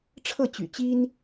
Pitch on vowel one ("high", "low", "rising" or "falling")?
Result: falling